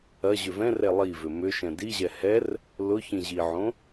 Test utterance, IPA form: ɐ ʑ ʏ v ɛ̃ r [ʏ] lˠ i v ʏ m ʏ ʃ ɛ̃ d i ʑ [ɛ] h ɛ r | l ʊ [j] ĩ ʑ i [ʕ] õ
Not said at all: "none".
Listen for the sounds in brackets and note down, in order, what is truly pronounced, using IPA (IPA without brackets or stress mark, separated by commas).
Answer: ɛ, ɛ, ç, ʕ